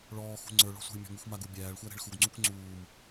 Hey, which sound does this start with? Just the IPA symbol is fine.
ɭ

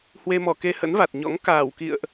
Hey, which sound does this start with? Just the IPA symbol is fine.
h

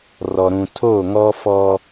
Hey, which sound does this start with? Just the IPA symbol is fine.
r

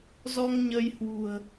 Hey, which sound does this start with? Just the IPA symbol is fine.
z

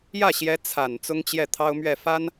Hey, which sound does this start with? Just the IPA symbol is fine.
j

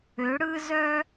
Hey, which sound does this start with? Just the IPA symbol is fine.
ø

